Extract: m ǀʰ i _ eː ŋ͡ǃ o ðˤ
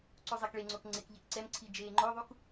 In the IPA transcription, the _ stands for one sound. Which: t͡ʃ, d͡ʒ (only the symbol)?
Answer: d͡ʒ